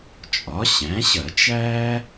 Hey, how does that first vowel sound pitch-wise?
rising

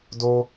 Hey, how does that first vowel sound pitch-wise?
high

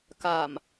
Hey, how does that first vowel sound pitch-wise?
low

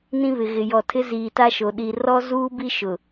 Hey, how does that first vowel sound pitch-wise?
high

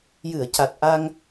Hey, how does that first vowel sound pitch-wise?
low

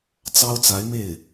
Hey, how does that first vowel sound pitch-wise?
high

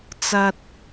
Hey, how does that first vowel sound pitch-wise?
low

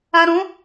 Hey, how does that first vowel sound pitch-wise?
low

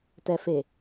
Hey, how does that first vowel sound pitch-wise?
low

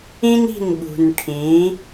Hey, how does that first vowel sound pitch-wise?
high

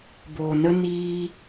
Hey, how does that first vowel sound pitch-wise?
low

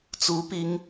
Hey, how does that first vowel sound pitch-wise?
rising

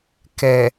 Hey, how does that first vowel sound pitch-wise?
low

